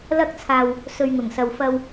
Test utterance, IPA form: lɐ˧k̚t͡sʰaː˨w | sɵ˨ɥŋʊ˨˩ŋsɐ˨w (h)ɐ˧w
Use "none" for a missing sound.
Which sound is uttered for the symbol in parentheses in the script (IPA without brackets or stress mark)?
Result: f